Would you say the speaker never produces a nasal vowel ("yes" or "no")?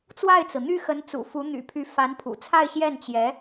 yes